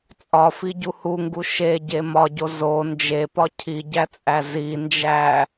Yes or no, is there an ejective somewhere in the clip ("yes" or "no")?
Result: yes